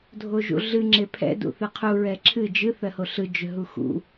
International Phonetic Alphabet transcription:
dʱoʒṵɮɨ ŋ͡ǁepʰɛ̰ dṵθɨqʰu ɹɛǁʰɨ d͡ʒɨ θɜhoɬɯ d͡ʒʏɦuxṵ

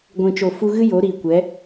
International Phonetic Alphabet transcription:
ɡʷĩ˨t͡ʃo˨ fu˧ɣɨ˦ jo˨˦ɾiː˨ kʷɛ˨˦

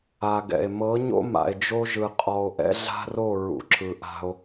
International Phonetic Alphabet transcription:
a˨ɡɛ̰˨e̯ mɤ˨˦ɲo̰˦ ma̰˨e̯d͡ʒo˦ʒɯ˨ qʼɔ˨o̯ʔɛ̰˦ɮa̤˦ro˦˨ ɹṵ˨ǁɯ˨ʔa̤˦o̯

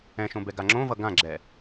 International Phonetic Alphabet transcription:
ɛ̃ʃõbɛɡa ŋ͡ǁõvʌ ɡãɡ͡ǁɛ

